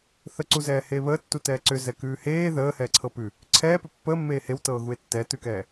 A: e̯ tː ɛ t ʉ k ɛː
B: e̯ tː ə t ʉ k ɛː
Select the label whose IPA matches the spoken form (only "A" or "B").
A